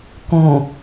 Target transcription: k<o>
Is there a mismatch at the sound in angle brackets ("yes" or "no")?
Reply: yes